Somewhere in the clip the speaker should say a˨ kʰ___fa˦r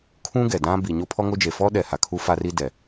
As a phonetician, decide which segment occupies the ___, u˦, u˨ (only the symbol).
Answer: u˦